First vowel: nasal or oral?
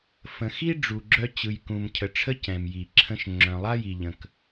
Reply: nasal